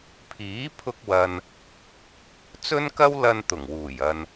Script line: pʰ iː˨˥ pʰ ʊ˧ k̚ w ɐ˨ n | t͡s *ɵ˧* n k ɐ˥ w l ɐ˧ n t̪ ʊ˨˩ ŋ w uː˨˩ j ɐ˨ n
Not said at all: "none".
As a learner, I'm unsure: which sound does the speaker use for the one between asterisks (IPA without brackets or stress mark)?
ɵ˥